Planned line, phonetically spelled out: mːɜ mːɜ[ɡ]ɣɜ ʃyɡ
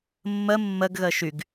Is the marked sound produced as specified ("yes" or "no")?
yes